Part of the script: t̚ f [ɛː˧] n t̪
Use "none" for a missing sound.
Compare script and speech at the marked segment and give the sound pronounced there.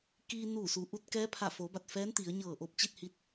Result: ɛː˧˥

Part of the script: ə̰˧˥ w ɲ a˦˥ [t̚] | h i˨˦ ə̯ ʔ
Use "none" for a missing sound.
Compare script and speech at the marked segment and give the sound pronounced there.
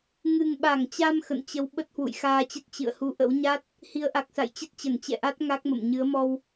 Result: t̚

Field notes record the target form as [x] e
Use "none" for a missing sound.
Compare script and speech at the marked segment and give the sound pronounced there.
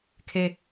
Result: kʰ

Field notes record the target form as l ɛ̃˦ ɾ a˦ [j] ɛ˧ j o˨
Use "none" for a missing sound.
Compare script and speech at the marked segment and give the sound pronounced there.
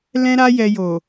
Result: j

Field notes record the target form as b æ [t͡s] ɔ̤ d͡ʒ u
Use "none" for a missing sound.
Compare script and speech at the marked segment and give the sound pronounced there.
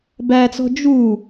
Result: t͡s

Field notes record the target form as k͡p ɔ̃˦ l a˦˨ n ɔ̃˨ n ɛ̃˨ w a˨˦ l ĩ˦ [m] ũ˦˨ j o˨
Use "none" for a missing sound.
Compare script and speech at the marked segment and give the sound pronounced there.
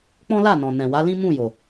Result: m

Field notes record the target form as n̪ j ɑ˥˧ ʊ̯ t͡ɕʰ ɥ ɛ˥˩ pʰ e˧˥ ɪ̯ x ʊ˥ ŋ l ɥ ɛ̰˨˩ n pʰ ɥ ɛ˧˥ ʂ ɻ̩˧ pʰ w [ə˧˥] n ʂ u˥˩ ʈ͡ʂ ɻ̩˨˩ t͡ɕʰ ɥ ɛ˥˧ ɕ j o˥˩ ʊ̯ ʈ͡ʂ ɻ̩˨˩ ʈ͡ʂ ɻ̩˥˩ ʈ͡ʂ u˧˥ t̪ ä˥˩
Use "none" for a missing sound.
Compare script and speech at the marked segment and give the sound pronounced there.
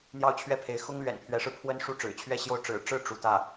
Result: ə˥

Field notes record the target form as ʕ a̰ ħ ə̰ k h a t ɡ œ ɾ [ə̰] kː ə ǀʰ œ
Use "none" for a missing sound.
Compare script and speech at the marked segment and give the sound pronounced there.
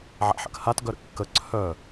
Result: ə̰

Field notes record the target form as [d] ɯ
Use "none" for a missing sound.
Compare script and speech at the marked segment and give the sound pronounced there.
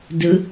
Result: d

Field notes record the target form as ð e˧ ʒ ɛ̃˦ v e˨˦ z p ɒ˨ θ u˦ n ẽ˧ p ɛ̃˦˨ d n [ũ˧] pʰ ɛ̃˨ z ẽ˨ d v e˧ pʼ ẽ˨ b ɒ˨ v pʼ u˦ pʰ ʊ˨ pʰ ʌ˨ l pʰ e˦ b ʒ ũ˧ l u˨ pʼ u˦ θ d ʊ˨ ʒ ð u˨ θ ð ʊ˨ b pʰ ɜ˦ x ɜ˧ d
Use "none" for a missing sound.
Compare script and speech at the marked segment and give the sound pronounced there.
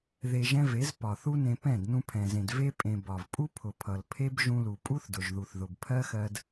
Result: ũ˧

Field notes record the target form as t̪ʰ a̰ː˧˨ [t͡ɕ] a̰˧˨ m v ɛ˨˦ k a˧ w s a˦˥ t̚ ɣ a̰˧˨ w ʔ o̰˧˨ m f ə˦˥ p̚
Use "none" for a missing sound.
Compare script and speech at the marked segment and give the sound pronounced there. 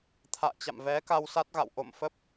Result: t͡ɕ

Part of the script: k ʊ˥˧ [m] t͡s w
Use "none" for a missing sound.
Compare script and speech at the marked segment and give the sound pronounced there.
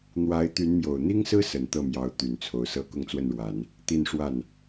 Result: ŋ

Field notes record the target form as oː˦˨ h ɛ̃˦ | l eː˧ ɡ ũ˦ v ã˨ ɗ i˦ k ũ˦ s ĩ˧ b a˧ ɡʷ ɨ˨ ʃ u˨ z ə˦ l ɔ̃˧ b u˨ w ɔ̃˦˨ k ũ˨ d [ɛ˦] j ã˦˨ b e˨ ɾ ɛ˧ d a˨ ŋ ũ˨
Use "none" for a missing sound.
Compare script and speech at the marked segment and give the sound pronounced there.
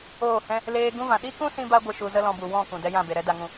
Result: ɛ˦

